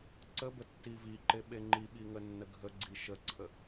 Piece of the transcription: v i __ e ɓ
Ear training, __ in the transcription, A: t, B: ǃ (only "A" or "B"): B